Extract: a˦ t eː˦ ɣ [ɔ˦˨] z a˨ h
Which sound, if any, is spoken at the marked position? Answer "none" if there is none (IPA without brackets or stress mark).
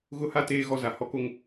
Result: ɔ˦˨